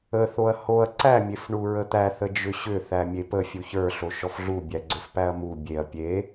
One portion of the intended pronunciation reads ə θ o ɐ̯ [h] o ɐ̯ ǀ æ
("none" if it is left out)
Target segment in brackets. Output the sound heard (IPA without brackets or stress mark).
h